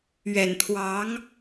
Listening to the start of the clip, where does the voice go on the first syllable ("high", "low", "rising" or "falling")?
low